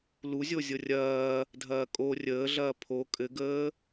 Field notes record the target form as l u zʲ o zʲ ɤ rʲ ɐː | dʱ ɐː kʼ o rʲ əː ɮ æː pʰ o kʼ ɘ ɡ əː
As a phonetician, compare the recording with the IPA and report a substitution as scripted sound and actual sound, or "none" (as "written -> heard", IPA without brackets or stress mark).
æː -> ɐː